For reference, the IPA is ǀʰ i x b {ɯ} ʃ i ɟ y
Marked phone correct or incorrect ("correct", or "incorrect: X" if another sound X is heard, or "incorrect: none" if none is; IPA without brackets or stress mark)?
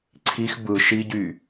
correct